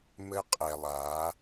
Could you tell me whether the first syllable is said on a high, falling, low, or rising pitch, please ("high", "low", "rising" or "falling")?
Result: high